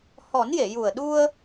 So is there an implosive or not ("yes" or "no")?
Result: yes